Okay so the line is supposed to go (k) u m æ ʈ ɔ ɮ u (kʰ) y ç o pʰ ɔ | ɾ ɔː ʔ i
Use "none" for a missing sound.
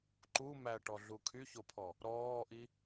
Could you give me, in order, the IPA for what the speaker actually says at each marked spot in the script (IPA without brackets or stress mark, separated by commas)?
ǃ, kʰ